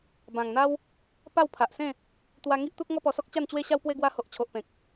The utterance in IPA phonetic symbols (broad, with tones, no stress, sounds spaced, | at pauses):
b ã˨˩ ŋ n̪ a˦ w | p a˥˧ w pʰ a˨ ʔ s ẽ˥˧ | t̪ w a˧ ŋ i˦ ʔ t̪ u˦ k̚ ŋ ɔ˦ p ɔ˧ s ɔ˦ k̚ t͡ɕ a˥˧ n t͡ɕ w e˦ ɕ a˦ w p w e˦ ɡ w a˧ h o˨ ʔ t͡ɕʰ o˨ ʔ p ẽ˨ k̚